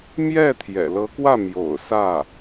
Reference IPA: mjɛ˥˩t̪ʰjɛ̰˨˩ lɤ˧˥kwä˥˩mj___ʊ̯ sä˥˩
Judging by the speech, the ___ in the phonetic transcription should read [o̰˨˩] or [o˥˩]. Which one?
o̰˨˩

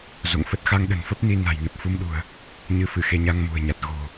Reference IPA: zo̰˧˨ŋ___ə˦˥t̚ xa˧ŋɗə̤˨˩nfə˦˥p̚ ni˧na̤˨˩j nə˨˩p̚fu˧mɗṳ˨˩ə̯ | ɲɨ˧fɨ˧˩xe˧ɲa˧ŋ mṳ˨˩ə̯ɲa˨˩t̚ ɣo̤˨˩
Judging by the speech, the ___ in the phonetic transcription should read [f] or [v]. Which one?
f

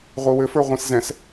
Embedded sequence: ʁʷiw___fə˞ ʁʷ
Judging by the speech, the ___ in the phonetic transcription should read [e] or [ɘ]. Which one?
ɘ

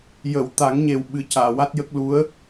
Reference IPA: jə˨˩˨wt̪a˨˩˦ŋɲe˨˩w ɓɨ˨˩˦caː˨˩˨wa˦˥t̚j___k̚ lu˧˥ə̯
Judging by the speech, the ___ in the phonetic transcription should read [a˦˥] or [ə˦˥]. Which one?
ə˦˥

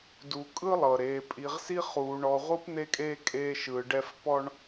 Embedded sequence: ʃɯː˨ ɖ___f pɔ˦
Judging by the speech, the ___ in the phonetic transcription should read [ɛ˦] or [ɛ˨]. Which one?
ɛ˦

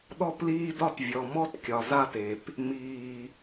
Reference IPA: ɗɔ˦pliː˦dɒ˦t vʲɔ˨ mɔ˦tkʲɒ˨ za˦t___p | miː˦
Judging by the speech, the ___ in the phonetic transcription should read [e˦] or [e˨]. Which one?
e˨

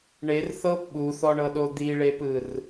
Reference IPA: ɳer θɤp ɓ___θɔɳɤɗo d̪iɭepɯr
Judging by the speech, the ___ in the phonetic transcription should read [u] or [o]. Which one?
u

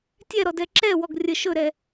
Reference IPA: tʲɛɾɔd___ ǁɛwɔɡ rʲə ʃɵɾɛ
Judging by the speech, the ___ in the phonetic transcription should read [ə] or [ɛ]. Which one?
ɛ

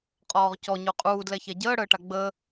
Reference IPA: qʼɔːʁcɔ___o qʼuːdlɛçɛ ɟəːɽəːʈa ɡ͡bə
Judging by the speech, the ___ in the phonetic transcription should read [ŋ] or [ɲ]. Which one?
ɲ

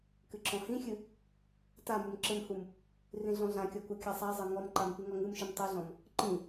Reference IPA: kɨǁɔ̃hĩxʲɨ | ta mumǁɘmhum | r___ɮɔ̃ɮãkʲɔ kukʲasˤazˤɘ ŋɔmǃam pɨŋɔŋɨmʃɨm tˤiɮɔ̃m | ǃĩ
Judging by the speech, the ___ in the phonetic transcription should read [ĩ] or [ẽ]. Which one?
ĩ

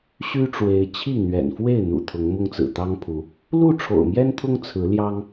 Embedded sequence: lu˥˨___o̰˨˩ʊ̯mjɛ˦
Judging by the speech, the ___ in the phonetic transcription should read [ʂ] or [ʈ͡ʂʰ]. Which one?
ʈ͡ʂʰ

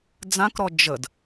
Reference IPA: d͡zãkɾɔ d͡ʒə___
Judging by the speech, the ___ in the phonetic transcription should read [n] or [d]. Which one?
d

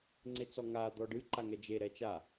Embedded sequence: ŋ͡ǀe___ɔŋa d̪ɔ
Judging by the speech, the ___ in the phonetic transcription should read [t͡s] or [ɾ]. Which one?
t͡s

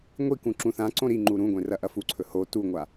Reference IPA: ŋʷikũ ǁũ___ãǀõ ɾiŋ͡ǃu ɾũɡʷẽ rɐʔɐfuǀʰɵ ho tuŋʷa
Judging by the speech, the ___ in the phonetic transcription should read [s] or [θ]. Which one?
θ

